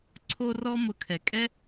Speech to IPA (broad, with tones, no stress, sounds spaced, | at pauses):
ǀʰ o˧ r ɔ˧ m ʊ˩˥ kʰ ɛ˩ kʼ ɛ˥